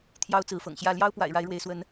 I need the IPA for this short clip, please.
t̪ʰjɑ˦ʊ̯t͡sɹ̩˨˦fɤ̰˨˩ŋɕjä˥˨ ljɑ˦ʊ̯pwa̰˨˩ɪ̯ ɻa˨˦ɪ̯ɻwe˨˦ɪ̯swə˨˦n

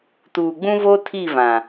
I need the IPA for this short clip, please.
tuː˨ɡ͡bũ˦ vo˦tʰi˦˨vã˨

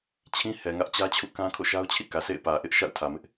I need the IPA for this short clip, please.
t͡ɕʰĩ˦hɛ˨ŋä˦ʔ t͡ɕä˦t͡ɕʰṵ˦˨kã˦ kʰo̰˦˨ʃa˦ʊ̯t͡ɕʰḭ˦˨ kä˨sḛ˦˨ɪ̯pä˨ʔɪ˦ʔ ʃa̰˦˨ʊ̯tʰä˨mɪ˦ʔ

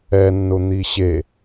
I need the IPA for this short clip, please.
ɛnːʊn̪i ɕe

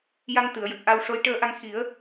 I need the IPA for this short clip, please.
ja˧ŋ t̪ɨ˨˩˨ə̯jə˨˩k̚ ʔa˧w ʂo˧˥j ʈəː˧ʔa˧ŋ xi˨˩˦ə̯

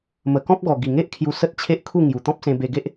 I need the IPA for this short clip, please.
mə˨˩kɔ̃˦p̚ɡɔ˨˩ ɡi˨˩ŋe˦ʔkʰju˧ sə˦t̚t͡ɕʰe˦ʔkʰu˥˧ ŋju˨˩t̪ɔ̃˦p̚sẽ˧ be˧ɡe˦ʔ

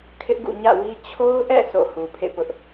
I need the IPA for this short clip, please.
kʰɪ˦ʔɡṵ˦˨ ɲä̰˦˨wi˦ t͡ɕʰo˦ʊ̯ʔɛ̰˦˨ sʰo̰˦˨ hu˨pʰḛ˦˨pʊ˦ʔ

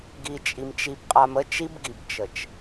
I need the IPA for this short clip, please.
ɡi˨t͡ʃʼi˨mt͡ʃi˨b qʼa˨mə˦ t͡ʃi˦bɡi˨b t͡ʃə˨t͡ʃ

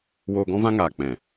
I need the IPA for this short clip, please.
woː˧ɡɔ̃˦vã˦ŋaː˨ k͡pɛ̃˨

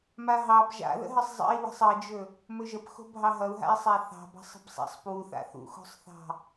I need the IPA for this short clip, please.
maɦɑb ʒa̰ðə̰ɦəsˤ zˤə̰i̯ wə̤sˤʌd͡ʒɵ | mɵʒəpxo̤ bʱɑɦʌu̯ɦa̰i̯sˤa θɑ̤bɑ̤sˤ ə̤bsˤa̰sˤ pwuθa̰ θṵxo̤sˤθɑ̤

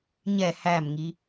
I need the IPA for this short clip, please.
ɲɛ hæmŋi

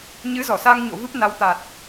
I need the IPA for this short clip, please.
ɲɨ˨˦zɔ˧˩sa˧ŋɲo̰˧˨ vɨ˦˥p̚na˨˦w t̪a˨˩t̚

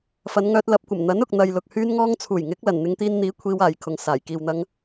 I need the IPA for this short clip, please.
fɐ˨˧nŋœː˧t̚ lɐ˨˥p̚kʷɐ˨˩m n̪ɐ˨˥nʊ˨k̚n̪ɐ˨j lʊ˨k̚ hyː˧nŋɔː˧ŋt͡sʰuː˨˩j ŋɪ˨˥k̚ lɐ˨˩nn̪ɪ˨˧ŋt̪iː˧nn̪iː˨˥ kʷʰiː˧waː˨jkʰʊ˨ŋ saː˨˩j kiː˨wn̪ɐ˧ŋ

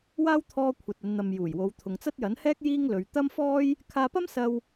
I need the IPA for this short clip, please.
waː˥w t̪ʰɔː˧ kʷʰɐ˨t̚ɐ˨˧nn̪ɐ˨m juː˨˩jwo˨˧w t̪ʰʊ˨ŋt͡sɐ˥t̚ jɐ˨˥nhɛː˥k̚ jiː˥ŋlɵ˨˧ɥ t̪ɐ˥mfɔː˥j | kʰaː˧pɐ˥m sɐ˧w

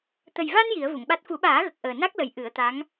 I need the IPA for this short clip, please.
t̪ə˨˩jva˧n ji˨˩˦ə̯vu˨˩˨ŋɓa˦˥t̚ fu˨˩˦ɓaː˨˩˦ɣə˨˩k̚ ʔəː˨˩na˦˥k̚lə˨˩j ʔɨ˨˩˦ə̯t̪a˧˥ŋ

